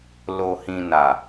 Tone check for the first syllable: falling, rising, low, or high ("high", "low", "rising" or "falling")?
low